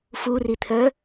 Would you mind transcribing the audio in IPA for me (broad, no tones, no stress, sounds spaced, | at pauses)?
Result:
f u r i t̪ʰ œ